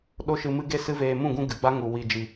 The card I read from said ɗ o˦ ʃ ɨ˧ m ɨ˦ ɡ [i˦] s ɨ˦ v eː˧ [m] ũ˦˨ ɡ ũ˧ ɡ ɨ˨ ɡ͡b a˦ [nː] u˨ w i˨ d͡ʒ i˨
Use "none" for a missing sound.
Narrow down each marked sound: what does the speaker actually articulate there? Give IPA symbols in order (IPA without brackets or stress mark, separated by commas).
e˦, m, ŋ